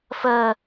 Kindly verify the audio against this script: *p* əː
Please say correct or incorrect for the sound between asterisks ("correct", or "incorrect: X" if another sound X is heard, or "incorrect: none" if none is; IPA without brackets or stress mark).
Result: incorrect: f